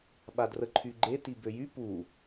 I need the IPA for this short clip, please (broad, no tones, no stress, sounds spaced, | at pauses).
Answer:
ɓ a d r ə ǃʰ y ɡ͡ǃ e t i b ø j y p u